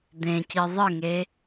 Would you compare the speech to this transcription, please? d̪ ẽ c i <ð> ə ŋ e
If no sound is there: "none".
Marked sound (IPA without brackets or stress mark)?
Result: ðˤ